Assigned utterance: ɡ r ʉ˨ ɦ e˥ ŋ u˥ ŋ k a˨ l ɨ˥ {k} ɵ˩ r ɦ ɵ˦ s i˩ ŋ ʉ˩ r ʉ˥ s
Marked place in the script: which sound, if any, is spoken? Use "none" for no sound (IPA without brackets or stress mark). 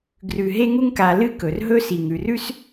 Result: k